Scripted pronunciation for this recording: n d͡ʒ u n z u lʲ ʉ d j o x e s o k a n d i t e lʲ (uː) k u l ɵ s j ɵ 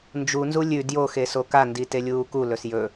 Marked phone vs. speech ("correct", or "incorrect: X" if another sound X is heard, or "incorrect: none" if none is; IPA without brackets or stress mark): correct